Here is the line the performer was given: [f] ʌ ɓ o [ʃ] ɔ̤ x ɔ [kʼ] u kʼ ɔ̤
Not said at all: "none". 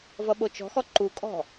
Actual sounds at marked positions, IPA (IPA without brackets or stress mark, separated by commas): v, t͡ʃ, ǃ